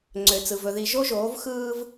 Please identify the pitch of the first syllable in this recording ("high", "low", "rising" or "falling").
low